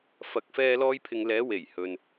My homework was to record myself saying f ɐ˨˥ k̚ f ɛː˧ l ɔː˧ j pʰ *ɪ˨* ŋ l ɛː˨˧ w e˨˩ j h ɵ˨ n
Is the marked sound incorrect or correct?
correct